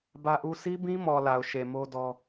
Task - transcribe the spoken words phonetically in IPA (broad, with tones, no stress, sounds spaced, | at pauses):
b ä˦ ʔ u˦ sʰ i˦ b ĩ˦ m ɔ˨ l a˨ ʊ̯ ʃ e˨ m o˦ d ɔ˦